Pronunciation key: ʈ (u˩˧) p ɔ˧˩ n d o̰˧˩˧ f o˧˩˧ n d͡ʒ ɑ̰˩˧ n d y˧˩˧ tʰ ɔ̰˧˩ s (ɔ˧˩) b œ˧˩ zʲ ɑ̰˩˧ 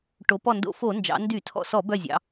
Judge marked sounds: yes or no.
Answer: no, no

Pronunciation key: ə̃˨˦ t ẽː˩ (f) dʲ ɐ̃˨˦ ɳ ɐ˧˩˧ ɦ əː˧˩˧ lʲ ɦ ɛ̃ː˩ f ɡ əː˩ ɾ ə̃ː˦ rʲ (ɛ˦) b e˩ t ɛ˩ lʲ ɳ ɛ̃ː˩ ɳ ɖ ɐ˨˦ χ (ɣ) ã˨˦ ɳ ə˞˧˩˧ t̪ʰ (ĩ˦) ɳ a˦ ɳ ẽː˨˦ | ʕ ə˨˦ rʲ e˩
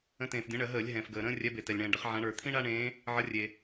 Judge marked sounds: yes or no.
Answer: yes, no, no, yes

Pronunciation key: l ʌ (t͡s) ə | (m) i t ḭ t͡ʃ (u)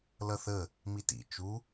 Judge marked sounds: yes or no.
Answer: no, yes, yes

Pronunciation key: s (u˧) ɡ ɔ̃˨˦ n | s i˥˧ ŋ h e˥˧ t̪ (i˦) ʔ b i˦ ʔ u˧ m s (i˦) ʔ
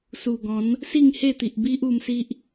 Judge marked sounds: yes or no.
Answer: no, no, yes

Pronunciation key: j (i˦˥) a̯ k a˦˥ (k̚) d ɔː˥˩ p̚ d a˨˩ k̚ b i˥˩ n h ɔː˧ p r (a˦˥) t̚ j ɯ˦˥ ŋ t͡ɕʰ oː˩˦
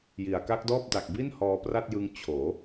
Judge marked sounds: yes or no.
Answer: no, yes, no

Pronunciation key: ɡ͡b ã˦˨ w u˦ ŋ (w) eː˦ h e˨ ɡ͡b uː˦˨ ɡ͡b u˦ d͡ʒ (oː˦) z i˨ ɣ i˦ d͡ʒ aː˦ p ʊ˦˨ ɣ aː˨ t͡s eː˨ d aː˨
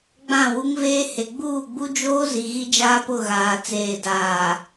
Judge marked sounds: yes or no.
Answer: no, yes

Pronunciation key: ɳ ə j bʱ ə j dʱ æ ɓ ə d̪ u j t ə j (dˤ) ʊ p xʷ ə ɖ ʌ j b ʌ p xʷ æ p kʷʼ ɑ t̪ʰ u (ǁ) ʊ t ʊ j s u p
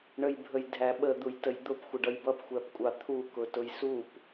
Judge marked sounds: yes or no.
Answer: no, no

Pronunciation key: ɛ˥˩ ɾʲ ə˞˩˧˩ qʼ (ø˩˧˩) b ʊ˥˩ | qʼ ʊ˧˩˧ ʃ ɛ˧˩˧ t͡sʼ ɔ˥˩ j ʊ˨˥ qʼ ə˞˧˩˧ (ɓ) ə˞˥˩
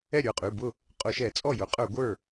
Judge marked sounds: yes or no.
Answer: no, no

